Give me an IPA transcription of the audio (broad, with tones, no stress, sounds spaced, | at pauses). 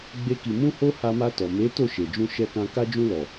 ɡ͡b e˦ k i˧ m ũ˦ h o˦ h a˧ m a˧ t ɔ˨ m e˨˦ t o˦˨ ʃ e˨ d͡ʒ ũ˧ ʃ ɛ˧ k ã˧ k a˧ d͡ʒ ũ˧ l ɔ˨